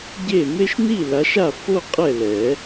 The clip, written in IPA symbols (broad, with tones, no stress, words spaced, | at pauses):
ɟe˥˩ me˥˧ʃni˥˩la˨˦ʃa˥˩ fo˥˧ qʼɛ˥˩lɛ˨˩˦